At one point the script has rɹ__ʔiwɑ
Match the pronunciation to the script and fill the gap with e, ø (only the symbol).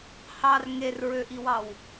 ø